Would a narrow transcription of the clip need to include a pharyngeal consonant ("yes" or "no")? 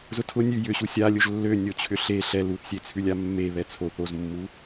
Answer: no